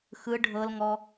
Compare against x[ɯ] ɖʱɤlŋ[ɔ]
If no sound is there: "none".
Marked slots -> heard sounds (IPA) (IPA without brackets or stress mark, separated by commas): ɯ, ɔ